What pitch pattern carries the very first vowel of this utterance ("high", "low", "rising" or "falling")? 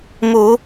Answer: low